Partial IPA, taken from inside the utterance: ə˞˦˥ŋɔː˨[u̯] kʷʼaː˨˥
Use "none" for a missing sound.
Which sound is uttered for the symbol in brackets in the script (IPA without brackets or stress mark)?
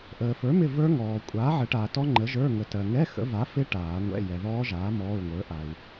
none